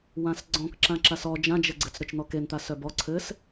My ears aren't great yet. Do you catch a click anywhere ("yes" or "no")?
yes